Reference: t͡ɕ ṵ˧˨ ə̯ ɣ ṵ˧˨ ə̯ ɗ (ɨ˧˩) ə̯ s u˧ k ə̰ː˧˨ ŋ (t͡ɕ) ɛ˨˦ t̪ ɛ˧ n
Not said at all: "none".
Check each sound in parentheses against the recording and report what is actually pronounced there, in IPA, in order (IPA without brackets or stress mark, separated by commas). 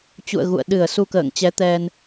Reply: ɨ˧˩, t͡ɕ